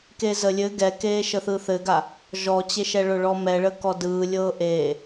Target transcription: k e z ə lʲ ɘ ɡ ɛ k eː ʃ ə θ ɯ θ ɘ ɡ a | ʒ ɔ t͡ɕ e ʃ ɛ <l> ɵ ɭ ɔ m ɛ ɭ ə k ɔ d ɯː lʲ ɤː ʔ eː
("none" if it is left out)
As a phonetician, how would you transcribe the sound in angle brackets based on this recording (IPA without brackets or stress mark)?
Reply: ɭ